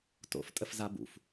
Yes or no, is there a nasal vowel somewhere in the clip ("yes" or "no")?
no